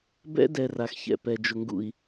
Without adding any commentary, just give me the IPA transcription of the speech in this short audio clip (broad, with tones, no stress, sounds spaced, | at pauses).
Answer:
b ɛ̰˦ d ɛ˨ r a˨ x ç ɛ̰˨ p ɛ˨ d͡ʒ ʊ˨ ŋ ɡ ṵ˨ i̯